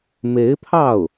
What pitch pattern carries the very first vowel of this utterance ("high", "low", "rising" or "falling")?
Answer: rising